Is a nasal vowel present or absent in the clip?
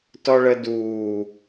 absent